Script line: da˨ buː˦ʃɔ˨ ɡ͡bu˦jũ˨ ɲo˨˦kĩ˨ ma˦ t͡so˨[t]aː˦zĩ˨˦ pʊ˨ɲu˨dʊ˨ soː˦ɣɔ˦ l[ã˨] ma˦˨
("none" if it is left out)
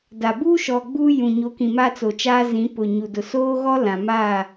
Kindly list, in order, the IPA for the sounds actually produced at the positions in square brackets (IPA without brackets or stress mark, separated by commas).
t͡ʃ, ã˨